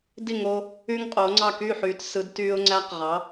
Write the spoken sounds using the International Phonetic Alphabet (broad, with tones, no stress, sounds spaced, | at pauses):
d i˥˩ ŋ o˧ | yː˥ ŋ qʼ oː˩˥ ŋ͡ǀ ɑ˥˩ k y˥˩ ħ yː˩˥ t s ɯ˩˥ d t yː˧ ʊ̯ ŋ͡ǀ æ˧ q ʁ ɑ˩˥